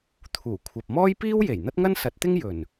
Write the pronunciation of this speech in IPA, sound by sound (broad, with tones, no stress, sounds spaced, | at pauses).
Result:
t̪ʰ uː˨˩ kʷʰ ɐ˨ p̚ m ɔː˥ j p iː˥ w j e˨˩ j n̪ ɐ˥ t̚ ŋ ɐ˥ n s ɐ˨˥ t̚ t̪ ɪ˥ ŋ j ɵ˨˩ n